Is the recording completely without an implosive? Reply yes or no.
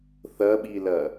no